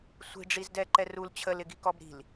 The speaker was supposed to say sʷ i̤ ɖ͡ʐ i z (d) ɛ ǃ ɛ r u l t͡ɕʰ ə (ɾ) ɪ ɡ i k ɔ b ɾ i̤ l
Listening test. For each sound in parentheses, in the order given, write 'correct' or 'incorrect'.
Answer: correct, incorrect: l

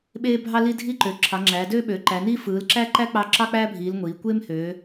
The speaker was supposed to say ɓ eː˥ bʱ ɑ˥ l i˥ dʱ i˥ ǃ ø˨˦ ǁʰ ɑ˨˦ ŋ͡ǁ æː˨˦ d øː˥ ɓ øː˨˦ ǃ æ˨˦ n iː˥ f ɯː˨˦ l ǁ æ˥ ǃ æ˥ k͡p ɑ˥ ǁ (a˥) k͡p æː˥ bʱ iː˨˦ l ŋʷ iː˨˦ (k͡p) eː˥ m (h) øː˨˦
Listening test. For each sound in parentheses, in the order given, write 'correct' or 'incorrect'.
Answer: incorrect: ɑ˥, incorrect: kʷ, correct

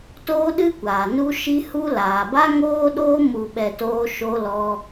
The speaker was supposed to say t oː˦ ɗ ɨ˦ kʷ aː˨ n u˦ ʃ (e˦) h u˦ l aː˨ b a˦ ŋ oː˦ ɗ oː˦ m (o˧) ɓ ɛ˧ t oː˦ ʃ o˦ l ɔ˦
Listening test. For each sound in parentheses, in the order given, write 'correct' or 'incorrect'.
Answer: incorrect: i˦, incorrect: u˧

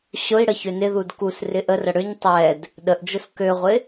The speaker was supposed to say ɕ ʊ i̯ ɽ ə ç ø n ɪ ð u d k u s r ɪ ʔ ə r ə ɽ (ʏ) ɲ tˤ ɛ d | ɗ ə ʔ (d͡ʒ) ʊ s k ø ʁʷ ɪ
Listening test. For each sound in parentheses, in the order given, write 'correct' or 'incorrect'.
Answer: correct, correct

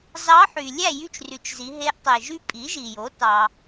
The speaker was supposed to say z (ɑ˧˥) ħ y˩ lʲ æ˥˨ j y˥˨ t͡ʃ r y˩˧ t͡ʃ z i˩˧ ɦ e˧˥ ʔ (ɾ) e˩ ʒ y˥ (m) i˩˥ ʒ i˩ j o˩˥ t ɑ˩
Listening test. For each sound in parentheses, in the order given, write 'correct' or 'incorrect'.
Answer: correct, incorrect: tˤ, incorrect: pʼ

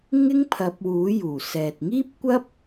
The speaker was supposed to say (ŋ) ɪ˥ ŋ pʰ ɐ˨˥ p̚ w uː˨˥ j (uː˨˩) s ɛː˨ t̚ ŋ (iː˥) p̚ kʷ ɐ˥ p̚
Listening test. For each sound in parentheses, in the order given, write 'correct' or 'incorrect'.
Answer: correct, correct, correct

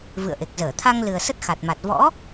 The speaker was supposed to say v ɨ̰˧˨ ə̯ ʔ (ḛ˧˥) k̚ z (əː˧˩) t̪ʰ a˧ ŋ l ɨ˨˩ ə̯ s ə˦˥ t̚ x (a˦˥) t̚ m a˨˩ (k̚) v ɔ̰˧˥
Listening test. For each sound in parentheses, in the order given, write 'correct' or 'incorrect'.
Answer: incorrect: e˨˩, correct, incorrect: a˨˩, incorrect: t̚

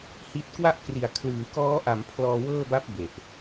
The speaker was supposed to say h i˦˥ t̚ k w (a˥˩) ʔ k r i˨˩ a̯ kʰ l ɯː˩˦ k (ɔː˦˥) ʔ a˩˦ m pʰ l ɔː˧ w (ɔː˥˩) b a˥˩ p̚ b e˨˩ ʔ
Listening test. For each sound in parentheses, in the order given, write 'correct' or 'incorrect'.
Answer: correct, correct, incorrect: ɤː˥˩

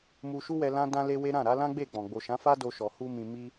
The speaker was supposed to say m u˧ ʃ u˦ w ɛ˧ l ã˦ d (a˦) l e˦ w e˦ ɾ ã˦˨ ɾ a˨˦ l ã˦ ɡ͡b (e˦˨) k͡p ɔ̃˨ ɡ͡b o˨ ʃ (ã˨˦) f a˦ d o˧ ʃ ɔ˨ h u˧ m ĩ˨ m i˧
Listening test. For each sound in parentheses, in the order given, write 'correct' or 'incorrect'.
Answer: incorrect: ã˦, correct, correct

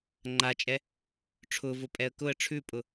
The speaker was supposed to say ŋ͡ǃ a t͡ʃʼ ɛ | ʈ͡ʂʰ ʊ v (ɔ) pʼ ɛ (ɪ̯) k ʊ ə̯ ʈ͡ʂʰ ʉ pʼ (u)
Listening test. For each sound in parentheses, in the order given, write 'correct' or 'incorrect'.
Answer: incorrect: ʊ, incorrect: ə̯, incorrect: ʊ

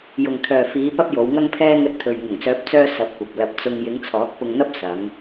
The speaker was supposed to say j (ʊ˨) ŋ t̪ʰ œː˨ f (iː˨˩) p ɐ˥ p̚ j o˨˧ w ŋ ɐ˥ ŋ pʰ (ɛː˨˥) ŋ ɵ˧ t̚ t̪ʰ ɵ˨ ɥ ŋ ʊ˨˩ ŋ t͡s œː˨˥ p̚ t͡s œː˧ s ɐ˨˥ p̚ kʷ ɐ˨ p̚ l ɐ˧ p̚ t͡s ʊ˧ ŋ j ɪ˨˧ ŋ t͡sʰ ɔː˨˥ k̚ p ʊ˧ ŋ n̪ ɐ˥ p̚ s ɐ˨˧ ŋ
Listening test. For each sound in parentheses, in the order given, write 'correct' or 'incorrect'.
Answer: correct, incorrect: iː˨˧, incorrect: ɛː˥

